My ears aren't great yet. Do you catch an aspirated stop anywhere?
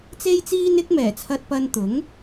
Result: yes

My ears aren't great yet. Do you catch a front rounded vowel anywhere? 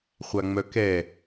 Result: yes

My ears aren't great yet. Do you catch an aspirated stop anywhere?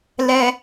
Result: no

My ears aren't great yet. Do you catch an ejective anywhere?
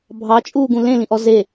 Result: yes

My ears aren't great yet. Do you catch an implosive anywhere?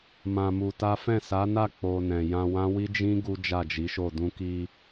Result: no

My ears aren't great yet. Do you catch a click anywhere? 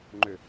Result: yes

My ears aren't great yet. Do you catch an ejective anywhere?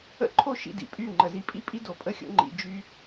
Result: yes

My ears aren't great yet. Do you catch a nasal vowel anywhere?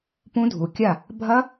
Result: yes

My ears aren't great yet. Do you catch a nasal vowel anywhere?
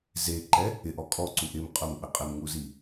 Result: no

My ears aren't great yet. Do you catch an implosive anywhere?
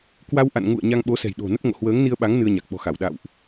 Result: yes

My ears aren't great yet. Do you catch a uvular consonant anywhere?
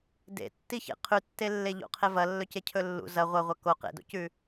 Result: yes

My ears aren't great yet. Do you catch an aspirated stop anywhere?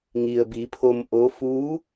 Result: yes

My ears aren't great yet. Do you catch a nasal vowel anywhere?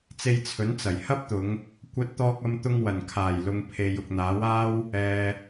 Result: no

